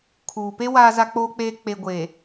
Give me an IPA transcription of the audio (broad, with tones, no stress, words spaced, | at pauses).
kʰuː˨pe˦ waː˨za˨k͡poː˨k͡peː˨ k͡pe˨ɡʷeː˨